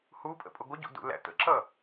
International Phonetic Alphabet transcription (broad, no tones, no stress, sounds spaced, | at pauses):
h u pʼ ə̰ pʼ ʊ ɡʷ ə ɟ ṵ d ṵ l æ̰ t̪ ə̰ ǁ ʌ